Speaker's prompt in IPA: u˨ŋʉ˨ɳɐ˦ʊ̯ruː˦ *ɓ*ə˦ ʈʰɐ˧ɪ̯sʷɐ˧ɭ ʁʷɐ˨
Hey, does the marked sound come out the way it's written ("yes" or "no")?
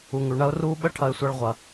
yes